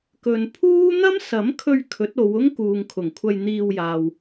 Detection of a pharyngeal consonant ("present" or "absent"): absent